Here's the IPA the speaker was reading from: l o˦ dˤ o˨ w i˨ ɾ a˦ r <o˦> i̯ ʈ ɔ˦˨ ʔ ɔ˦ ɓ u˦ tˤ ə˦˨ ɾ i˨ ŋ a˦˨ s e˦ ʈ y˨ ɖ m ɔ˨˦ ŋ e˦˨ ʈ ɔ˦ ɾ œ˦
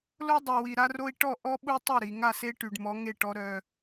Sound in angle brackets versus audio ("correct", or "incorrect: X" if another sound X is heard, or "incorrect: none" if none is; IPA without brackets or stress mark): correct